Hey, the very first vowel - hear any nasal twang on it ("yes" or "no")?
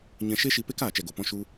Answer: yes